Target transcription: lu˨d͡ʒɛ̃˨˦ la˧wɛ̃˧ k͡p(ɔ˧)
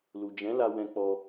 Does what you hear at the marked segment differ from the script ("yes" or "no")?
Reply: no